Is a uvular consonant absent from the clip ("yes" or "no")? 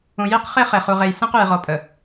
no